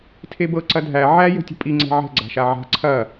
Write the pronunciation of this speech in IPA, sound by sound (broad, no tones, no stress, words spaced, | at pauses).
tʰebɤ ǀɐdʱæ ʕæ jə̤tʲə̤pʼi ŋ͡ǀɛ̤ʕɛ̤ ɡ͡ǀa̤ʃaʕa̤ ǀʰɐ